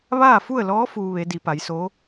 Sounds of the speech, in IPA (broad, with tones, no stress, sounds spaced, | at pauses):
ʋ aː˥˨ f u˥˨ ə̯ l ɔː˧˥ f uː˧ ʋ e˩˧ d i˩˧ p a˩˧ j s o˧˥